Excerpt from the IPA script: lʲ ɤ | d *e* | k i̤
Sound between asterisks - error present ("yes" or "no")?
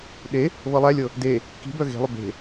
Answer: no